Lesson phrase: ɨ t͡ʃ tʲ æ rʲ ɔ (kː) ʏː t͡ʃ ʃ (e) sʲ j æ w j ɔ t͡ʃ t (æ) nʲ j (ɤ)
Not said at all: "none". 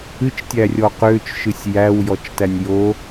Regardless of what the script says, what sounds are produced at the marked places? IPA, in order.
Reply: q, ɨ, æ, o

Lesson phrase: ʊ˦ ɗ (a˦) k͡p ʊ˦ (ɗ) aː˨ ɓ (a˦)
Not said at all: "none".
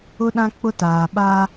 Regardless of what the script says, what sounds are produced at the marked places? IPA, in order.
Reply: ã˦, t, a˦

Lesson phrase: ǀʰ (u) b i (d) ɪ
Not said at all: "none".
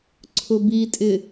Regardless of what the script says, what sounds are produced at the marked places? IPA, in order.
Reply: ʊ, tʼ

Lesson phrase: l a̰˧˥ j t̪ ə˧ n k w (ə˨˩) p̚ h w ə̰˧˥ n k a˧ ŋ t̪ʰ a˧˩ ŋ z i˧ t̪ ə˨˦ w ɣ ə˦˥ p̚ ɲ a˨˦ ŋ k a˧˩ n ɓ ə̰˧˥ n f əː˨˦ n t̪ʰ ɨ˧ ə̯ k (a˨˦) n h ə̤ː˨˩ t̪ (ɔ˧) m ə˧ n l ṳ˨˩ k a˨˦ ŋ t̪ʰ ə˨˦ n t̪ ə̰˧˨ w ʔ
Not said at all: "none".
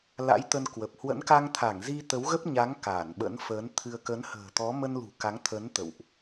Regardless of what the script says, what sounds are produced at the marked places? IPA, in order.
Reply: ə˨˩, ə˨˦, ɔ˨˦

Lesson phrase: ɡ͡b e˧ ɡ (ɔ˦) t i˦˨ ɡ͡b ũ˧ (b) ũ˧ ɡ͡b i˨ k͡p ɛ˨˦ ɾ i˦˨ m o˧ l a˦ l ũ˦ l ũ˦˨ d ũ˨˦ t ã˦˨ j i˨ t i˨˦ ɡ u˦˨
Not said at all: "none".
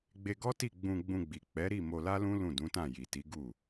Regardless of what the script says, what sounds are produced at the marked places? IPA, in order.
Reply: ɔ˦, ɡ͡b

